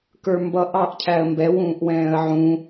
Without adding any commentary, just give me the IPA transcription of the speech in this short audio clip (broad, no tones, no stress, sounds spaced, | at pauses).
k ə˞ m b ʌ ʔ ɑ ʔ cʰ æ ə̯ m b ɛ w ũː ʔ w ɛ̃ː ə̯ ʕ ũ